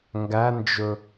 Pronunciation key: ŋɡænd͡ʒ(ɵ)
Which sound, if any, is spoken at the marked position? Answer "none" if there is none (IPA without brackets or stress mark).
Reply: ɵ